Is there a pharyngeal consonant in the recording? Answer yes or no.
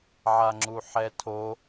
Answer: yes